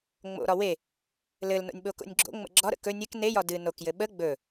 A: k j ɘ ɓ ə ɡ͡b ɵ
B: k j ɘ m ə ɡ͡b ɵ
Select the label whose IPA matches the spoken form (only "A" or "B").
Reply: A